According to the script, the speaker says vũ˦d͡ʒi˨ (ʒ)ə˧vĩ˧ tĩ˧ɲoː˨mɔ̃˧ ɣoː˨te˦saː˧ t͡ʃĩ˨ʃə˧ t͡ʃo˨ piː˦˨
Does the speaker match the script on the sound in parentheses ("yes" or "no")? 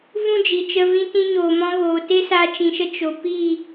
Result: no